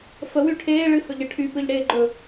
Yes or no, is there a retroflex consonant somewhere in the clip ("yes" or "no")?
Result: yes